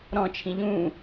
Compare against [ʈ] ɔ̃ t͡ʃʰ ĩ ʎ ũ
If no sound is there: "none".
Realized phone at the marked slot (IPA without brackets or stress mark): ɾ